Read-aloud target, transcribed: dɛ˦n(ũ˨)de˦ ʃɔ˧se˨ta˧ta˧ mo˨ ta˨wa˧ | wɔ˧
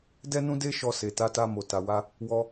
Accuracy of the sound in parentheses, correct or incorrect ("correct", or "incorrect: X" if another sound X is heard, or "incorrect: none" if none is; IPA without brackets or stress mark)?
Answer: incorrect: ũ˦